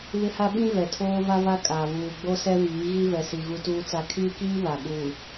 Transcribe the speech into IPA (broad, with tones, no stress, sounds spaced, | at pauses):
β ɪ˦ h a˦ ɓ ĩ˦ v ɛ˨ tʰ oː˦ v a˦ v a˦ kʼ a˨ β uː˨ ɡ͡b o˦ s ɛ˦ v iː˨˦ ɣ i˦ v ɛ˨ s i˨ ɣ u˦ t uː˦ t͡s a˦ kʰ iː˦ k iː˦ β a˨ ɓ uː˨